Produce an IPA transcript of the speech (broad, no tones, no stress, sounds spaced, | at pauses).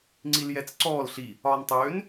ŋ͡ǀ i l j ɛ t͡s ǀ ɔː l ɬ i | ɒː n tˤ øː n